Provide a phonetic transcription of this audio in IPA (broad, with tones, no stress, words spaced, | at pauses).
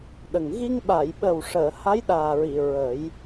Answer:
ɗə˨˩ŋ ɣi˧ŋɓa˨˩˨jɓə˨˩wʂəː˨˩˨ ha˧˥jɗaː˨˩ɹi˨˩˨ ɹə˨˩˦j